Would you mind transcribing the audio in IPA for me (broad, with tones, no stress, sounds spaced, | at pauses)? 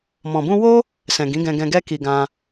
m ɔ̃˨ b ũ˧ w o˦ | s ɛ̃˨ ɡ ĩ˨˦ ɡ ɛ̃˧ ɡ ɛ̃˧ ɡ ɛ˦ k i˧ ɡ ã˧